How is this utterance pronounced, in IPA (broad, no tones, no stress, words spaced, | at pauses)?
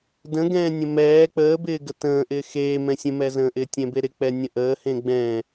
də̃ɡɛ̃ː nʲə̃mɛː k͡pəːbɪː ɡətə̃ːʔɪː xeː mɛ̃sʲə̃mɛzə̃ː ʔɪːtʲɛ̃beɾɪ k͡pɛnʲə̃ʔəːhẽ ɡ͡bɛ̃ː